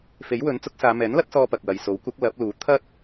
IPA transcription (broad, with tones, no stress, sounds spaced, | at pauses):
f e˨˥ j w ɵ˨˥ n t͡s ʊ˨˥ k̚ s aː˨˧ m ɛː˨˥ n l ɐ˨˥ t̚ s ɔː˧ p ɐ˨ k̚ w ɐ˨ j s o˨˥ w kʷ ɐ˨˥ k̚ l ɐ˨˥ p̚ l uː˨˥ t̪ʰ ɐ˥ t̚